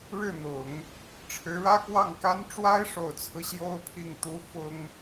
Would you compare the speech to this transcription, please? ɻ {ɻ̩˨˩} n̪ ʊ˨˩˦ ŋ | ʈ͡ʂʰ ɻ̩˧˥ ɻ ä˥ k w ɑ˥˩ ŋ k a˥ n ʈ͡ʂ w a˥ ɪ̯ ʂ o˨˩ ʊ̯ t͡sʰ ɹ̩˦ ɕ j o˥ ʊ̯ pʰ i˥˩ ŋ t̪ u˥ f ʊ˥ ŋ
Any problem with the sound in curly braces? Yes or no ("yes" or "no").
yes